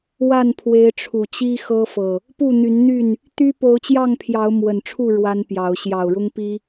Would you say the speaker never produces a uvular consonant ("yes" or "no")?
yes